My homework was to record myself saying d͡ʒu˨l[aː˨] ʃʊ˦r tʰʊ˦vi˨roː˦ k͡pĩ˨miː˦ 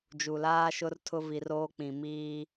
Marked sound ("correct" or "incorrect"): incorrect